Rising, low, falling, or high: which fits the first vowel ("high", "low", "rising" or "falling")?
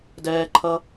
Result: high